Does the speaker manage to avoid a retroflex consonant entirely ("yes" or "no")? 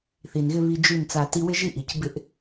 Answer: yes